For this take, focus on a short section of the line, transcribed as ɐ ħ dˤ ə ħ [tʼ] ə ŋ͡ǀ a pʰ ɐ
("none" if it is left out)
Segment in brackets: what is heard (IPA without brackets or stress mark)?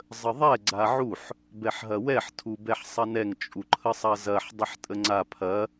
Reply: tʼ